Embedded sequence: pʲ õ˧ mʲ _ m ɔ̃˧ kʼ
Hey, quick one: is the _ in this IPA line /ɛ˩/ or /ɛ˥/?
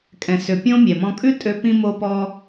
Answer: ɛ˩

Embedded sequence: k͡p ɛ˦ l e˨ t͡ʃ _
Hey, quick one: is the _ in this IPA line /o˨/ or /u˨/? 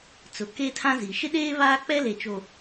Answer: o˨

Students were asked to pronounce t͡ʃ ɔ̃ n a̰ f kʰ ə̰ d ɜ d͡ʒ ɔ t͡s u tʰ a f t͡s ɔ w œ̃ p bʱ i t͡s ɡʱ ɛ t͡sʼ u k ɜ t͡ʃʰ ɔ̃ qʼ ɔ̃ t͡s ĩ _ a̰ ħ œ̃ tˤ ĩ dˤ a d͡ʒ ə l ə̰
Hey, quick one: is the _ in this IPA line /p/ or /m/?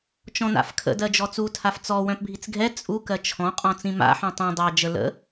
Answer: m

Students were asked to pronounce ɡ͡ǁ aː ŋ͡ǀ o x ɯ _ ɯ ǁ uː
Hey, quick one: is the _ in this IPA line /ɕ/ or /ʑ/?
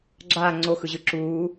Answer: ʑ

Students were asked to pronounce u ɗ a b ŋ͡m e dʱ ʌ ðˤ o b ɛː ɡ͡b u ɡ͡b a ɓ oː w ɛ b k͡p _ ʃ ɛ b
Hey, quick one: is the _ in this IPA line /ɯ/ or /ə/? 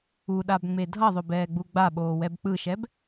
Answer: ɯ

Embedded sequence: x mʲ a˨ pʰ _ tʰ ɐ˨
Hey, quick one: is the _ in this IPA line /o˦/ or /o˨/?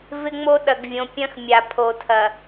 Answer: o˨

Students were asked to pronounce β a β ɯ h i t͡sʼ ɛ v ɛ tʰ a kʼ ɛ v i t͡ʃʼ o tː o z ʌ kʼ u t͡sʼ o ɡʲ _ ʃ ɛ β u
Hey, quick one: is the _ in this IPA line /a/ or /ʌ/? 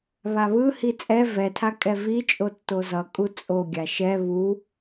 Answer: a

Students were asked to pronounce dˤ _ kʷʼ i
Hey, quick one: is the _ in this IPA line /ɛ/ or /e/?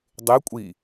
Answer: e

